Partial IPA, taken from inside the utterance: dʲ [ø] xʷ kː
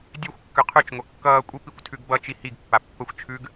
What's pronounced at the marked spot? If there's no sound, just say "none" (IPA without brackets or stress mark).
ø